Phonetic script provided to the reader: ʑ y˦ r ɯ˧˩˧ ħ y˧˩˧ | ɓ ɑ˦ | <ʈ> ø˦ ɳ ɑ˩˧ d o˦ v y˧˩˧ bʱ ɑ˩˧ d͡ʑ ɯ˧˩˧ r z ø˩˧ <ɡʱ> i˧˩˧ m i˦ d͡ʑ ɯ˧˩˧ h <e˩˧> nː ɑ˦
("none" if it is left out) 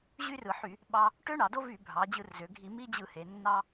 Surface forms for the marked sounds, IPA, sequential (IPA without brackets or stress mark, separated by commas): ʈ, ɡʱ, e˩˧